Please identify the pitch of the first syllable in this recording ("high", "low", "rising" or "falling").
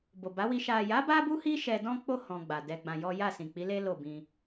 low